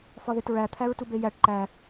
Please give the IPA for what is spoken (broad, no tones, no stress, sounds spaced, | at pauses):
f ɒ ð e t ɹ æ t̪ʰ æ ɹ t u b e j æ ʈ ǃ æ